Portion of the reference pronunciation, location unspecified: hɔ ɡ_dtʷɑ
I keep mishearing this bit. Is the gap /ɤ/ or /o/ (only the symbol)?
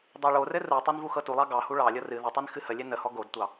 o